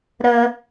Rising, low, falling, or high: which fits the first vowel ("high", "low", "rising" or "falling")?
low